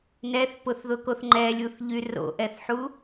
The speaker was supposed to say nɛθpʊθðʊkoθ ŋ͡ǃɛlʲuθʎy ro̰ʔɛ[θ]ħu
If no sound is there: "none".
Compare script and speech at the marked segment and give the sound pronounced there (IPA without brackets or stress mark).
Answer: θ